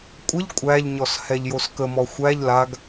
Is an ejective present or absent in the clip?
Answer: present